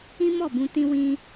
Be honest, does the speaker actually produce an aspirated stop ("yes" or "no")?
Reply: no